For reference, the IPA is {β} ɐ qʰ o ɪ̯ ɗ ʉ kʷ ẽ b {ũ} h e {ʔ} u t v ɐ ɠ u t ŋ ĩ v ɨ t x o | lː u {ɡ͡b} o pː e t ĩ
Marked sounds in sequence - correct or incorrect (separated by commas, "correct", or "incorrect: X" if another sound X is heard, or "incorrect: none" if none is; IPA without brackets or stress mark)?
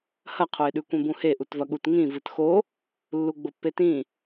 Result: incorrect: h, correct, correct, correct